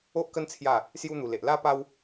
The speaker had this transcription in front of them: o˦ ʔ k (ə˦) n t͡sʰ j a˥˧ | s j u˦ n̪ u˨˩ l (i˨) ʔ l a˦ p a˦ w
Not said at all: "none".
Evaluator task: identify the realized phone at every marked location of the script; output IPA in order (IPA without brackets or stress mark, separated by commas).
ə˦, e˨